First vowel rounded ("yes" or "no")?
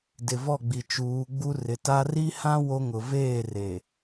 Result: no